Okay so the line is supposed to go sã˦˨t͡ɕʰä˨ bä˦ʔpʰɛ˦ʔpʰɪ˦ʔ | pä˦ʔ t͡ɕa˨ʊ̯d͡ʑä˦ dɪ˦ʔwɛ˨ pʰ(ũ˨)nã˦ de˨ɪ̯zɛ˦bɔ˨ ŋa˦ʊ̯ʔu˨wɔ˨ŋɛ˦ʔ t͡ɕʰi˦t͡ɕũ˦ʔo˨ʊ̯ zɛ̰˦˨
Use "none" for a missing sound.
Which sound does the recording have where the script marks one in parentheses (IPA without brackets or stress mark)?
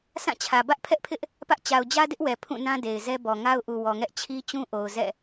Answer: ũ˦˨